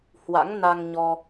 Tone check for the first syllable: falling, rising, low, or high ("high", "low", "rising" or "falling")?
rising